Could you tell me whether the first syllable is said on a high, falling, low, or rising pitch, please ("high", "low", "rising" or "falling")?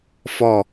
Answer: falling